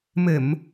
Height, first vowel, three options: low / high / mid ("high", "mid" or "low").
mid